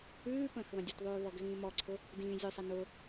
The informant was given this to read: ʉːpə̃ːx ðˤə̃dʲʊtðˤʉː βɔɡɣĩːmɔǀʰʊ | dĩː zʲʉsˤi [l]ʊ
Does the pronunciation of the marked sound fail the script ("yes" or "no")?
yes